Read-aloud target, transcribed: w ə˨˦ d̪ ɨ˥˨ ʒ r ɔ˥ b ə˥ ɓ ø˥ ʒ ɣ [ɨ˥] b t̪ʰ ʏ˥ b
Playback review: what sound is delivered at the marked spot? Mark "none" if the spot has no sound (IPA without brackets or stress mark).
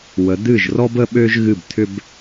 ɨ˥˨